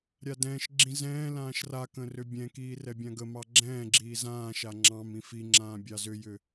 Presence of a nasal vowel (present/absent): present